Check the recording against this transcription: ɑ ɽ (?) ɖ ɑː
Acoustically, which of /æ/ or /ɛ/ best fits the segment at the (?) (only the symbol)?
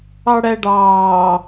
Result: æ